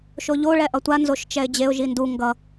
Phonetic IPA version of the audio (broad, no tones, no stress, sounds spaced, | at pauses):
ʃ o ʎ o ɭ ɛ ʔ ʌ tʷ a n z o ʃ t͡ʃ ɛ ɪ̯ d͡ʑ e ʊ̯ ʒ i n d u ŋ ɡ ʌ